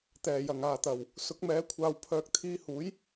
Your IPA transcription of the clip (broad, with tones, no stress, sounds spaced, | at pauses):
t̪ ɛː˨˩ j ɐ˨˩ ŋ aː˨˩ t̪ ɐ˨˩ w | s ʊ˨˥ k̚ m ɛː˨˥ kʷʰ aː˨ w pʰ œː˨˥ k̚ t̪ʰ iː˧ h uː˨˥ j